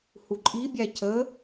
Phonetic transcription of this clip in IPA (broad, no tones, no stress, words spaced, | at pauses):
huǃʼibʲæ cə